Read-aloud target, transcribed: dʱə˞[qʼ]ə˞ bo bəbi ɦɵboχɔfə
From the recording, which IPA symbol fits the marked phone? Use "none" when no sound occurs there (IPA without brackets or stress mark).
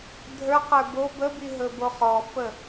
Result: q